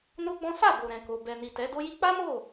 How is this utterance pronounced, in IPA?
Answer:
no˦ɡ͡bɔ̃˦ sa˦˨bo˨ ɾɛ̃˨ko˨ bɛ˨ni˨ tɛ˨˦do˦ji˦ k͡pa˦mo˦˨

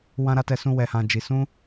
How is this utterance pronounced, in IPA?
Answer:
wã˦ɾa˦tɛ˧sũ˦ wɛ˧hã˧d͡ʒi˧ sũ˦

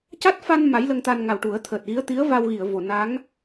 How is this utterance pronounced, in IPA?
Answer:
ca˦˥t̚fa˧n ma˧˥jlə˧ŋt̪a˧n ŋa˨˩wʈu˨˩˦ə̯ t̪ʰəː˨˩t̚ɣi˧˥ə̯t̪i˧˥ə̯va˧w ɣi˨˩˨ə̯vo˨˩˨ na˧˥ŋ

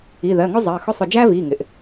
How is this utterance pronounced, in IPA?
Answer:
i˩˧˩ðɜ˩˧˩ŋʊ˦ zˤɜ˩˧˩xʊ˦sˤʊ˧˩ d͡ʒæ˦vi˩˧˩ ŋɪ˩ʔ

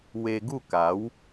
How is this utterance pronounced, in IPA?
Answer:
we˧ ɡu˥˧ka˨˦w

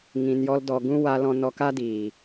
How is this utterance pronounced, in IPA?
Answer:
ŋĩ˧njɔ˦ldɔ˧ ɡũ˦wa˧lɔ̃˧ nɔ˧ka˦diː˨

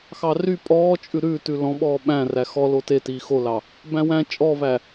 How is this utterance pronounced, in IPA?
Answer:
xɑry pʼɔːt͡ʃʼʉ ɾʉːtʉ lɔ̃ɓɔː ɓæ̃ ræxɔlo tetiː xolɑ | bæ̃wæ̃ t͡ʃʼɔvæ

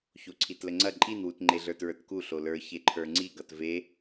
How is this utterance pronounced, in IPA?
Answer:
çoǀʰitləŋ͡ǀɐ ǃʼinwut ŋ͡ǃeɮə˞tɹə˞tku ɬolə˞ çeǃʰə˞ŋ͡ǀiɡʌt ve

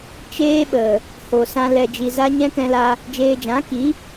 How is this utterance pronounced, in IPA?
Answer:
t͡ʃeː˦ɓə˨ | ho˧sã˦ lɛ˧d͡ʒi˧ za˦ ɲɛ̃˦kɛ̃˧la˧ | d͡ʒeː˧d͡ʒã˨˦ki˨˦

